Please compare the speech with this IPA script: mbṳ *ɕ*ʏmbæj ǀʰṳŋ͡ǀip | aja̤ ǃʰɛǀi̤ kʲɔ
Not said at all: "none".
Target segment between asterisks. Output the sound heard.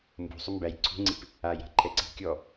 sˤ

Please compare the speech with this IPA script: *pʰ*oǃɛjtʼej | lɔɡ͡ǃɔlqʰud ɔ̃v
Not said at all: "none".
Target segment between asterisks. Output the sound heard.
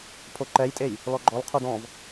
pʰ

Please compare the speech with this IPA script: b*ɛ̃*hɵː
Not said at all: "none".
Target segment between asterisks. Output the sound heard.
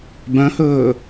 œ̃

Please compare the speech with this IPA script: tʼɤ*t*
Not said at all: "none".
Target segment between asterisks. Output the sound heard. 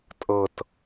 t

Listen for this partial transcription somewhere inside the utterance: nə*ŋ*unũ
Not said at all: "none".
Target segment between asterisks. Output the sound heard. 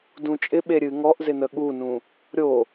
ɠ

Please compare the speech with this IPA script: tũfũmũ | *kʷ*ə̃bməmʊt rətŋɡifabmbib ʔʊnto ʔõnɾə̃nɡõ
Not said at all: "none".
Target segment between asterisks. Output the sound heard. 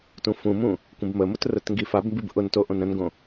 kʷ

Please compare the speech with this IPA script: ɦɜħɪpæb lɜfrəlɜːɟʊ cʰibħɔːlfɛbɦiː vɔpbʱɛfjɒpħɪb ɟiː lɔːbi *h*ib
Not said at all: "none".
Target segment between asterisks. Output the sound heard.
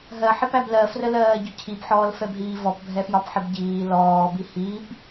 h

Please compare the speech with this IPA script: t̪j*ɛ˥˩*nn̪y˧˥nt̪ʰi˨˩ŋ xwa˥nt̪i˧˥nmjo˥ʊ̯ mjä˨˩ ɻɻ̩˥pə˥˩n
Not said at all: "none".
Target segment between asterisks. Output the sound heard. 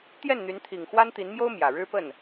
ɛ˥˩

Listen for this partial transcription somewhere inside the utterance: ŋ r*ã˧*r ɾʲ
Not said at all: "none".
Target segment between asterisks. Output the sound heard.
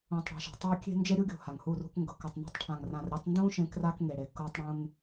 ã˨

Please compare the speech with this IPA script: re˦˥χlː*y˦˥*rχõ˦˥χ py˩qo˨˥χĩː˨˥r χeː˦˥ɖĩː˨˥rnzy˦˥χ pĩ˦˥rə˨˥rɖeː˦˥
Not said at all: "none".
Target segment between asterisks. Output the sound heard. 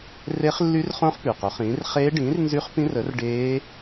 y˦˥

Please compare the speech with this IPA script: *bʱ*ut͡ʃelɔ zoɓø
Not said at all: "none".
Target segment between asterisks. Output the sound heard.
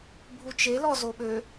bʱ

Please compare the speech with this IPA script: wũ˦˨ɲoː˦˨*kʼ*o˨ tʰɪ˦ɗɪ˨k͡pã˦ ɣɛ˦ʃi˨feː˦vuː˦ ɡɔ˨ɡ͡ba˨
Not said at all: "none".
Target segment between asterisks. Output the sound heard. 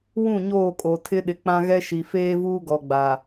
kʼ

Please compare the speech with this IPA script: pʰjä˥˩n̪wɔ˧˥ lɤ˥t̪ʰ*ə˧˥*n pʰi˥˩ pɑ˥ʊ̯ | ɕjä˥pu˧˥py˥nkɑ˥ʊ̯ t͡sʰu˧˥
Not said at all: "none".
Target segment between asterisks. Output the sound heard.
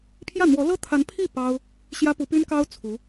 a˧˥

